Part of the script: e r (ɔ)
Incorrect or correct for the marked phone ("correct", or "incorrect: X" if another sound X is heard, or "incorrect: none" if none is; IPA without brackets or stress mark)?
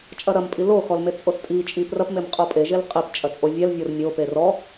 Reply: correct